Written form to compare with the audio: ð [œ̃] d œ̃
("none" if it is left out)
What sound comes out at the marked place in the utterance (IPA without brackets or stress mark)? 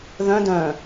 œ̃